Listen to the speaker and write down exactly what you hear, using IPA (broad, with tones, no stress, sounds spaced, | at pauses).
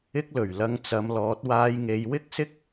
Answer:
ɪ˥ k̚ l ɵ˨˩ ɥ l ɐ˧ ŋ t͡s ɐ˨˧ m l ɔː˨˥ t̚ w aː˧ j ŋ e˨˧ j w ɪ˥ k̚ s ɪ˥ k̚